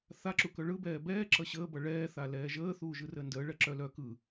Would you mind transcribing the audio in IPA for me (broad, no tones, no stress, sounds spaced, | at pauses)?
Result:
θ a ǁ u k œ ɭ ɯ b ɛː b ɛː ǁ ʌ ɕ əː b ʌ ɭ ɛː θ a l ɛː ʒ əː θ uː ʒ ɯ r əː n d əː ɭ ɛ ǁ œ l œ k ɯ